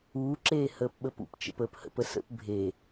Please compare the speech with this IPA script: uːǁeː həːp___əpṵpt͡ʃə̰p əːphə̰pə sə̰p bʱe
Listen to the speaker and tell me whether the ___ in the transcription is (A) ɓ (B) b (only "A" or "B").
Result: A